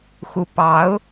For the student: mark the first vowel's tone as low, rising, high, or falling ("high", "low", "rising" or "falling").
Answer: rising